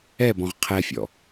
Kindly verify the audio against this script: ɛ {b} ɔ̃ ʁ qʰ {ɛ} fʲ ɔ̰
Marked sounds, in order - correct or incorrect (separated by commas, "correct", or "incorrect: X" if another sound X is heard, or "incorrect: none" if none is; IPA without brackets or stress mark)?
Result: correct, correct